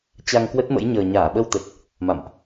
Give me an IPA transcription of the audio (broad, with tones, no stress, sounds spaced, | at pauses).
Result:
t͡ɕ a˧ ŋ k w ə˦˥ t̚ m ə̰˧˥ j ɲ əː˨˩ ɲ aː˧˩ ɓ ə˧ w t̪ ə˨˩ t̚ | m a̰˧˨ m ʔ